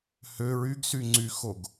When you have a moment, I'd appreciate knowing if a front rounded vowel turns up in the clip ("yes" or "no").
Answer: yes